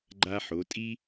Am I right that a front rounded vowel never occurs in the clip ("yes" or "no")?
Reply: yes